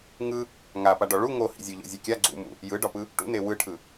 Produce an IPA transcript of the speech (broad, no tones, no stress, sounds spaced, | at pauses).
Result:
ŋ ɯ | ŋ a p a ɖ ɔ ɭ u ŋ o h ḭ zʲ o ʎ o̰ zʲ u kʲ a ɡ͡ǀ ṵ m ṵ | j ɯ ɖ ɒ p ɯ | ʈ ṵ n e w ɯ ʈʰ ɯ